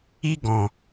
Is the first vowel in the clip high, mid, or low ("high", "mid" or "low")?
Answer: high